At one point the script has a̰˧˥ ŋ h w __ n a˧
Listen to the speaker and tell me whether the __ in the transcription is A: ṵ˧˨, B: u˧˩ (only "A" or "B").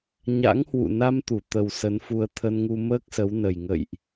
A